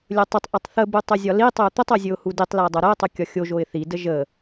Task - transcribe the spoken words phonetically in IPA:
lʲɵtˤətˤʔɵtˤ θəbu tˤɵzʲɒlitˤɵʊ̯ t̪ətˤo zʲɵʊ̯huditˤləʊ̯ dˤoɾəʊ̯tˤu kʲɒxʲoʒoɪ̯ θidə ʒə

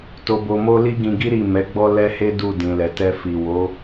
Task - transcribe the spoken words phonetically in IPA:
to˧bo˧mo˦ li˦ɡĩ˧ɡi˦ ɾi˦˨mɛ˨˦ɡ͡bɔ˦ lɛ˦he˦ du˦˨dĩ˨lɛ˨tɛ˧ fi˨wo˨˦

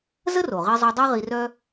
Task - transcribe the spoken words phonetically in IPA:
zə˥ro˩ʁi˧zˤo˧ dˤɜ˥ʁi˧rœ˥

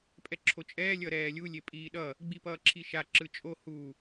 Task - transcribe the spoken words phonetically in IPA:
pʼɛǁʰot͡ʃʼɛː lʲʌɾɛːlʲu lʲepʼiːɗʌ | ɡ͡bipʌːǁʰiʃa ǁɯt͡ʃʼo hu

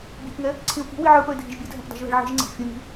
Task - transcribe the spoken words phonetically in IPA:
bʲɛ̤pŋɛ | ǀʰĩo̯ki̤ wiʕə˞pə˞e̯dʱiʒ bʲɛdʱɛ̃p dˤi̤ʒðɛ̤ɭʕi̤ʒŋ͡ǀɛ̤ʔ fʲũni̤

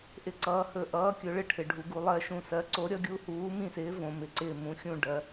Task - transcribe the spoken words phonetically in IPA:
ʔɪ˦˨ǀʌː˨˥hɵ˦˨ ʔʌː˨˥kʲɵ˩˧ɭɪ˦˨ ʈʰɪ˩˧ɖʱu˩˧ ɡu˩˧lˠɜ˦˨ʃũ˦˨ sɜ˨˥ ǀo˨˥ɾʲʌ˨˥ɡʲu˨˥ huː˨˥mĩ˦˨sɪː˨˥ võ˩˧mɪ˩˧ǀɪː˦˨ mũ˨˥xʲũ˦˨ ɖɜ˩˧

